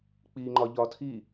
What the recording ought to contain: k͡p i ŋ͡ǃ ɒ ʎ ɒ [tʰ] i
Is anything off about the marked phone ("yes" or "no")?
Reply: no